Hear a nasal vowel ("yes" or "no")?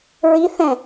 yes